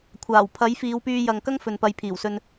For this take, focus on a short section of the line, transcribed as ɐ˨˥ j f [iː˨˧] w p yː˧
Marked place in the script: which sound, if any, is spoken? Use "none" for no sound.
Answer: iː˨˧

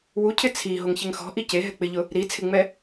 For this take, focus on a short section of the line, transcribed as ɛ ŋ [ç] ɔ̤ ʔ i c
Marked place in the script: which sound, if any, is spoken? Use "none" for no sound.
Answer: x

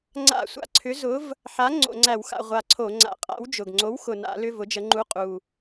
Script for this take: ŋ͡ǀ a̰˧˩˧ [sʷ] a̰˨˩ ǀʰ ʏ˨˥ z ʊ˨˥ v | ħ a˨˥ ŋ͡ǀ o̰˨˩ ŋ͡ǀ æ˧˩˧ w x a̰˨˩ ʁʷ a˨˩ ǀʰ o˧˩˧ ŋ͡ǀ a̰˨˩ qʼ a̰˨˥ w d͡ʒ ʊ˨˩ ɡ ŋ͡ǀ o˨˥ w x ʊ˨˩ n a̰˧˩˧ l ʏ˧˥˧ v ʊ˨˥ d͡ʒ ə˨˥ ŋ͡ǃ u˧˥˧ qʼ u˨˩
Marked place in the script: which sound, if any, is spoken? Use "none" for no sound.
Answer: sʷ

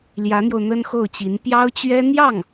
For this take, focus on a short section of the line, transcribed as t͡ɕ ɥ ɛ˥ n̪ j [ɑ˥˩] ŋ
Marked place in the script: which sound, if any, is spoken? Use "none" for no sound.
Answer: ɑ˥˩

